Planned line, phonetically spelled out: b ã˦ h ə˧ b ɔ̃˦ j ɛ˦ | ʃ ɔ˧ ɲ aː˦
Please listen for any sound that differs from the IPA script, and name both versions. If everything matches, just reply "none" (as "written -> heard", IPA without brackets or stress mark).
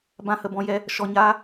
none